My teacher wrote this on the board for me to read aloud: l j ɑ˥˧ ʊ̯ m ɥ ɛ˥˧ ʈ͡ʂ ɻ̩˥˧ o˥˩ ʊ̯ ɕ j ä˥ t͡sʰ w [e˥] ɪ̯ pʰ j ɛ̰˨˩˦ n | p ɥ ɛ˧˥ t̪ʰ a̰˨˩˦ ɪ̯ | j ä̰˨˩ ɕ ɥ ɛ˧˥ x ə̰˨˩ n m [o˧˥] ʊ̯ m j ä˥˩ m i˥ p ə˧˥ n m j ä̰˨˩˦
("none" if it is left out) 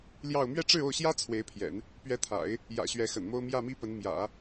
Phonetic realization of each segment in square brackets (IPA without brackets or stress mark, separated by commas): e˧˥, o˥